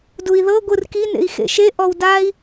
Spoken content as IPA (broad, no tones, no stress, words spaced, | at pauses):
dui̯ðɤ ɡʷɯrki nḛi̯xḛʃe ʔɔwdai̯